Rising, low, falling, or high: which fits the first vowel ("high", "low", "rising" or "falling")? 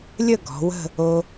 falling